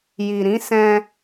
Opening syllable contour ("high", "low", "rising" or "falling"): low